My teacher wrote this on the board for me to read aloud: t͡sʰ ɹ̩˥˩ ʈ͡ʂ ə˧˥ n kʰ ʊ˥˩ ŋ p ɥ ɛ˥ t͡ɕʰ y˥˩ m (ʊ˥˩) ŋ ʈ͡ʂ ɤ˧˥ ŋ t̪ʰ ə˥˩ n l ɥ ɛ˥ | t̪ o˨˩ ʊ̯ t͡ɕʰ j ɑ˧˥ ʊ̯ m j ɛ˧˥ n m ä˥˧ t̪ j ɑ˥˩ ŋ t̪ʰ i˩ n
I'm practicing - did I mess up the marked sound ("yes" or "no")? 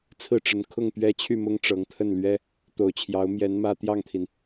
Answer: yes